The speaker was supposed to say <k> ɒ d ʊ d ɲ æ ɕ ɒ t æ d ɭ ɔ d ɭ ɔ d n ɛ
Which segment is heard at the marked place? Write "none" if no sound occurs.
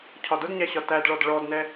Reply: cʰ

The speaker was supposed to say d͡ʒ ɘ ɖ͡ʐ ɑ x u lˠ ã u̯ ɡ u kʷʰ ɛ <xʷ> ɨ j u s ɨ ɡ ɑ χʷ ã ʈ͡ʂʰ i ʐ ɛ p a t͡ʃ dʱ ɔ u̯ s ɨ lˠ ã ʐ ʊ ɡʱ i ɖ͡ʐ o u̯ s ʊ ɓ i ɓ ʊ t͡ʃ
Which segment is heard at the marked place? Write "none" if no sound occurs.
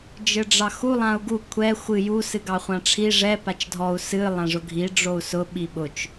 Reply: xʷ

